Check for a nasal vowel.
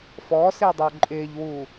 absent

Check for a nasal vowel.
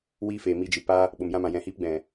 present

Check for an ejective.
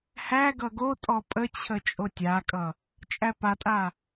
present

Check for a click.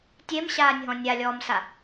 absent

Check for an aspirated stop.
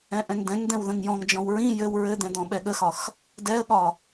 absent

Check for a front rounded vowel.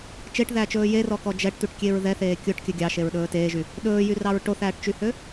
present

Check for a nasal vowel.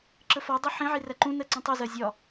present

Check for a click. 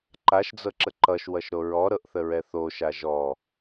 present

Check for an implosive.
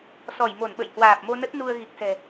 present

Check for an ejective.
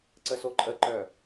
present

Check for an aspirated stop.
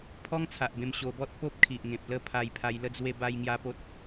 present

